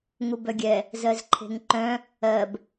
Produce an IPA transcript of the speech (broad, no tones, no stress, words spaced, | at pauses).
ŋubœɡʲɛ | zɜzǃʰe̤ŋǃœ̃ | ɜb